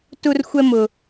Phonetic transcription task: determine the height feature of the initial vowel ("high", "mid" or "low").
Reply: high